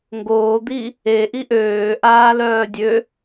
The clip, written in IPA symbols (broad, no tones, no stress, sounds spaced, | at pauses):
ŋ ɡ oː d̪ i | e ʔ i ʔ øː ʔ aː l œː dʲ ø